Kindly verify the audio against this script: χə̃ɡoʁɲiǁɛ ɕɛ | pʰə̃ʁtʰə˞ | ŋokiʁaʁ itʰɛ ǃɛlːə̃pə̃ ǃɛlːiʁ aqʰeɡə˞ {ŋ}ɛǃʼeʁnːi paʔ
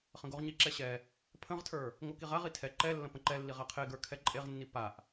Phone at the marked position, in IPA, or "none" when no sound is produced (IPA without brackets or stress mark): kʰ